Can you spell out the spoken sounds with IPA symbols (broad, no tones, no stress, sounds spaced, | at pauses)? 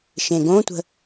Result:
ʃ ẽ ɡ õ tʷ ə̤